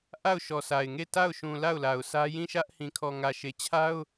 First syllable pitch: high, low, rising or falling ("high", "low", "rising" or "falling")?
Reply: falling